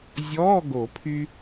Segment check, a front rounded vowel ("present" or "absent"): present